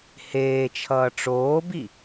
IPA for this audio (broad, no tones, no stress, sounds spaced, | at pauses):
h eː t͡ʃʰ ʌː ʈ͡ʂ oː b i